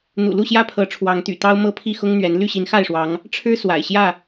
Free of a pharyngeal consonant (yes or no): yes